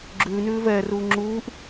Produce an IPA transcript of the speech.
ɡ͡ǁ ʉː n ʉː v ɛː r uː ŋ͡ǁ uː ʔ

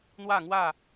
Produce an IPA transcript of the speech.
n̪ w a˥˧ ŋ w a˥˧

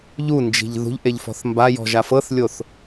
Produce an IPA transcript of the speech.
ʎ u n d͡ʒ i̤ ʎ ð ṳ ʎ ʔ e ʎ f ɔ̤ θ m b a j ɔ̤ ʒ a f ɤ θ lʲ o θ

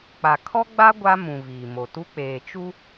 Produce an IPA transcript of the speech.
k͡p a˨ kʰ ɔ˦ ɡ͡b a˦ ɡʷ a˦ m ũ˨ v iː˨ m o˨ t u˦ k͡p eː˨ t͡ʃ u˦

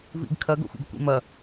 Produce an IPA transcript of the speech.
v ḭ ɡ kʰ ɐ ɡ o̰ xʷ ḭ ɡ kʷ ḭ m ɐ

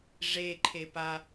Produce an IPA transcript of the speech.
ʐ e ǃʰ e p a

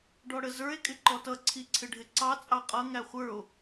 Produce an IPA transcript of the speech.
ɖ ɔ ɽ ə z ə˞ e̯ kʼ ɪ ǃ ɔ t ʌ ǀʰ i ǀʰ ɪ ɖʱ ɪ ǀ ɑ t͡sʼ ɑ qʼ ʌ ŋ æ χʷ ə˞ o̯

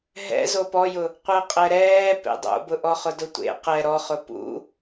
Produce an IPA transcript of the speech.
ɦ ɛ̰ z o p ɔ j ʊ | qʷ ɛ qʼ ɛ ɾ ɛː p ḛ dˤ o̰ b ʊ ʔ ɔ χ ʊ d ʊ tʷ ḛ q ɛ ɾ ɔ χ ʊ p ṵ

